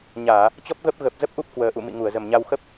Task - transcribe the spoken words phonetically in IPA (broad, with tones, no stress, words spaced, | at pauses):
ɲaː˧˩˨ | t͡ɕɔ˦˥p̚ɣə˦˥p̚ ɣə˨˩p̚zə˦˥p̚ʔu˦˥p̚ kwəː˨˩ʔṵ˧˨mḭ˧˨ ŋu˧˩ə̯zə˨˩mɲa˧w xə˦˥p̚